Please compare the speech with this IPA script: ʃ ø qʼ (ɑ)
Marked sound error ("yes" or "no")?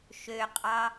no